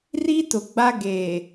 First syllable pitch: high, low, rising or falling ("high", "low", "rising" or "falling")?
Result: high